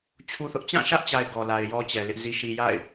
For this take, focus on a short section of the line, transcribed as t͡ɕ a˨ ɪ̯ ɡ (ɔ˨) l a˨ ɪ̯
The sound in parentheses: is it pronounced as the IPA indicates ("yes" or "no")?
yes